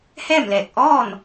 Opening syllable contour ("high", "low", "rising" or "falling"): falling